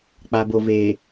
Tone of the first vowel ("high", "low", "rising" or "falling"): low